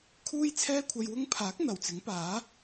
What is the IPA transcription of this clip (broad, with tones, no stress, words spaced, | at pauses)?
kʰuː˥j t͡sʰɛː˥kʷʰɐ˧jwʊ˥ŋ pʰaː˨˥k̚ n̪ɐ˨˩wt͡sɪ˨˥ŋpaː˨˥